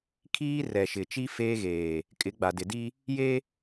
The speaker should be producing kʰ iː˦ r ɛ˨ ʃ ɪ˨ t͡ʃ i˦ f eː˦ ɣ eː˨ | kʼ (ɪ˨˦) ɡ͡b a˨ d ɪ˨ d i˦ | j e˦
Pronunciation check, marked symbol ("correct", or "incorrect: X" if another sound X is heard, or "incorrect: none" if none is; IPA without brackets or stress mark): correct